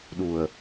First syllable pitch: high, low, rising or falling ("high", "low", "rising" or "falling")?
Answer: low